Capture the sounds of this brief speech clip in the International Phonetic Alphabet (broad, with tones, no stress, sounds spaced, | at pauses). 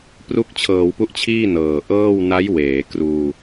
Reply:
p r u˦˥ k̚ t͡ɕʰ ɤː˩˦ w p u˦˥ ʔ t͡ɕʰ iː˥˩ n ɤː˨˩ ʔ ɤː˥˩ w n a˦˥ j w eː˩˦ k r uː˧